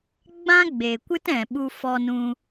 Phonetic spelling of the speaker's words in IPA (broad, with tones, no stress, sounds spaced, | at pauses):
ɡ͡b ã˦ ɡ͡b e˨ kʷ ɨ˦ t ɛ̃˨ ɓ u˧ f ɔ˧ n ũ˧